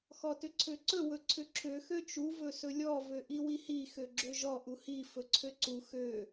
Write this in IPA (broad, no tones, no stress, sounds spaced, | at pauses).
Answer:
x ɔ t ʏ ǀʰ ø ǀ ɵ w ɵ ǀʰ ʏ ǁʰ ø x ø t͡ʃ u v ɵ s ɵ lʲ ɔ v ø ʔ i w i h i x ø ɡ͡ǁ ø ʒ ɔ ʔ u h i f ɵ ǀʰ ø ǀ u x ø